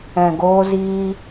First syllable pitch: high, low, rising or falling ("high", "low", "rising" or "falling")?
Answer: low